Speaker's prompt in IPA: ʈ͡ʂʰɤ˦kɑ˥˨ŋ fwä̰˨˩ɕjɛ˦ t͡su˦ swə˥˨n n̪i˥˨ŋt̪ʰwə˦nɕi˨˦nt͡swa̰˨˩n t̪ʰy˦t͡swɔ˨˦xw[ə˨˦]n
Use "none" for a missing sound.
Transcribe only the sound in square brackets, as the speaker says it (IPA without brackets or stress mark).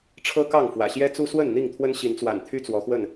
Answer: ə˥˨